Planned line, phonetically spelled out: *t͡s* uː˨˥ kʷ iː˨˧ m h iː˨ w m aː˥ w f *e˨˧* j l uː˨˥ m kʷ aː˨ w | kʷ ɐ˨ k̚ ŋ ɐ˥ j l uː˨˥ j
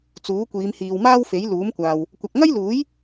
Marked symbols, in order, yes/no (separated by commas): yes, no